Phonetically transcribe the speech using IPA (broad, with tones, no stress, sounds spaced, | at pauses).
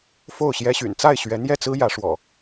f o˥˨ ʊ̯ ɕ j ɛ˦ ɕ y̰˨˩ n t͡s a˥˨ ɪ̯ ɕ ɥ ɛ˨˦ n̪ j ɛ˥˨ t͡s ɹ̩˦ j ä˨˦ ʂ w ɔ̰˨˩